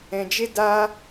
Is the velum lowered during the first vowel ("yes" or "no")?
yes